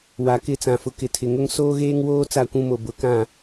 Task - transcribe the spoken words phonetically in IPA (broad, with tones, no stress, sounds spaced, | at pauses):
w a˨ k ɪ˦˨ t͡s ã˨ f ʊ˨ k ɪ˨ tʰ ɪ˨ ŋ ʊ˦ ŋ s oː˦ ɣ eː˦ ŋ w oː˦ t͡s a˦˨ kʷ ũ˦ m o˨ b ʊ˨˦ k ã˦˨